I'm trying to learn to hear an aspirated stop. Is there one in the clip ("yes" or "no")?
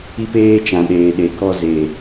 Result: no